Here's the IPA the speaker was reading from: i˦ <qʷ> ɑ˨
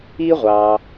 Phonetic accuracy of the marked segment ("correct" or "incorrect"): incorrect